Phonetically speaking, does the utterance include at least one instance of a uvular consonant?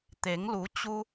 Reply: no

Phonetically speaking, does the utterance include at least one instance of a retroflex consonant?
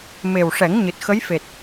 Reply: yes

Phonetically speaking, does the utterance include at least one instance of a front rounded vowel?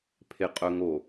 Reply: yes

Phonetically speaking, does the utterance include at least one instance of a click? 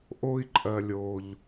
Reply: yes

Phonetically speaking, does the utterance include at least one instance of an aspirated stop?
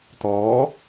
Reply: no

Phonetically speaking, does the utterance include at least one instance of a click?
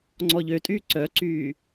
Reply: yes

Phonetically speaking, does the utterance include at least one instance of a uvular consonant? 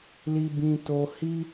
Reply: no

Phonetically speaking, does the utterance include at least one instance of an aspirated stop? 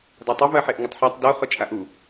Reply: no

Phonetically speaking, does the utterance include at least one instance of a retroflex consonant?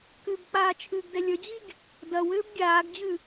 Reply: no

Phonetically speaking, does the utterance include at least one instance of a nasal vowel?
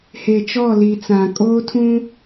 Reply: yes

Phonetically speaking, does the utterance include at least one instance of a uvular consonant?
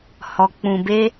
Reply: no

